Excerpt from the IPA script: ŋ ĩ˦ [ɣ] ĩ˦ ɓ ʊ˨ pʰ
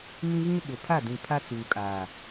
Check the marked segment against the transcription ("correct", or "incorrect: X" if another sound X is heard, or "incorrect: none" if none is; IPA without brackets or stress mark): correct